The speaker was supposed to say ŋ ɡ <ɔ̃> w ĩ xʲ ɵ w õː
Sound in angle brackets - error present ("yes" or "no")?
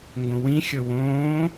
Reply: yes